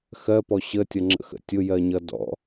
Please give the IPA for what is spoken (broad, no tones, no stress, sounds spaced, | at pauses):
x ɜ p ɔ ɕ ə tʲ ʌ ŋ͡ǁ ə̰ x ə̰ tʲ ʊ j ɜ ɲ ʌ d ɔ̰